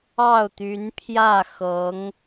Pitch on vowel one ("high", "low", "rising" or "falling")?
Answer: falling